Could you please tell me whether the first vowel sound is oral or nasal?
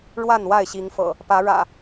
oral